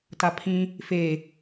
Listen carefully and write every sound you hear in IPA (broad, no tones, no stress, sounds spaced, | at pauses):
t a pʰ ĩ | f e